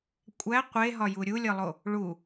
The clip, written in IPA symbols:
kʷʼ æ qʷ e ɦ ɒ j u ɾʲ u lʲ ɒ lˠ o | ɭ u

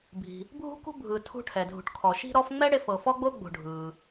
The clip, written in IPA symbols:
bʱ i̤˩ | bʱ ṳ˥ k ṳ˥ bʱ ɯ˨ tʰ ṳ˦ ʈʰ ɛ˩ dʱ ṳ˨ ʈ kʰ ɔ˨ ʃ i̤˦ ɾ ɔ˦ f ŋ͡m ɛ˥ ɽ e˦ f ɤ˨ f ɔ˥ ɡ͡b o˥ ɡ͡b o̤˨ ɖʱ ɯː˩

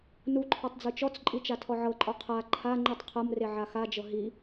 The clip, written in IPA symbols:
n u ǃʰ ɔ tˤ d͡z ɯ t͡ʃ ɔ t͡s ǃʼ i t͡ʃ a tʰ ɔ ʕ ɤ ǃʼ ɔ qʰ a ǃʰ a ŋ͡ǃ i tˤ qʰ ɤ m r e ʕ a x a d͡ʒ ɤ ɦ i

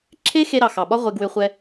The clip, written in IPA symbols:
ǁʰ e˦ x e˧ ɾ ɑ˨ x ɑ˨ ɓ ɒ˦ ʁʷ e˧ ɡ w ʏ˧ χʷ ɛ˧

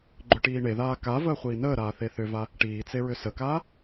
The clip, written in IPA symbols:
ɡ͡ǃ ʏ ʈ iː ɳ e ð aː k a v əː χʷ iː n əː ɾ aː θ e θ ʏ v a | ʈ iː t͡s e ɹ ʏ s ə k aː

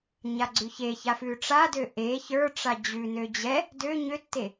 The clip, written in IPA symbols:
ɲ a ɡ͡ǀ ʉ ç e ç a f ʉ ʈ͡ʂ a d ø ʔ e ç ə˞ ʈ͡ʂ a d͡ʑ ʉ n ø d͡ʑ ɛ | d ø ɲ ø tː e

